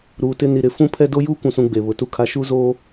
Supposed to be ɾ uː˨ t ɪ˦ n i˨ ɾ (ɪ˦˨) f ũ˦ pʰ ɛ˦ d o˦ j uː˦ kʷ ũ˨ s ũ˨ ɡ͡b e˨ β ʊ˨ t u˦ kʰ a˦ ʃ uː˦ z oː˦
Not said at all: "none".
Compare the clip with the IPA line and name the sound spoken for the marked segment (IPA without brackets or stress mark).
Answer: ɪ˦˨